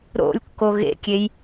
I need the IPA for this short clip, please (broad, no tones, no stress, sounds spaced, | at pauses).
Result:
ɾ o̰ lʲ kː o ɣ ḛ kʲ e j